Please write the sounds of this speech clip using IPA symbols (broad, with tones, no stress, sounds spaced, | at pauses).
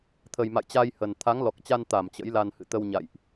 t̪ʰ ə˨˩ j m a̰˧˨ j t͡ɕ a˧ j h ə˨˩ n t̪ʰ a˨˦ ŋ l ɔ˨˩ k̚ t͡ɕ a˧ n t̪ a˧˩ m t͡ɕ ə̰˧˥ j l a˧ n h ɨ̰˧˨ t̪ ə˧ w ɲ a̰˧˨ j ʔ